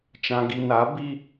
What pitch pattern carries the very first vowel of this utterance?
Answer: low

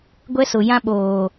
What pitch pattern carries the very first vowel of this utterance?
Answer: high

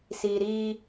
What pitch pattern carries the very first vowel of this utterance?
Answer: low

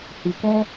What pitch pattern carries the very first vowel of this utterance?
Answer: low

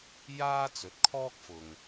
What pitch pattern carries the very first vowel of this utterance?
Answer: high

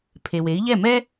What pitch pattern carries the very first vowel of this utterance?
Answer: low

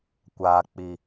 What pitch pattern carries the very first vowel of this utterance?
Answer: low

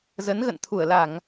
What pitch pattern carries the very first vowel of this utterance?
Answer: rising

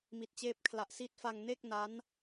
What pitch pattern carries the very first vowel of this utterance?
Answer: low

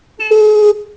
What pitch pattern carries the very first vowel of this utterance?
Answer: high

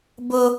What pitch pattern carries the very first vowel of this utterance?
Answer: high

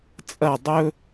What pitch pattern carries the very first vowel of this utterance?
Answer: falling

